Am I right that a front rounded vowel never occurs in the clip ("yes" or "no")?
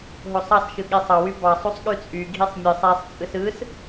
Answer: no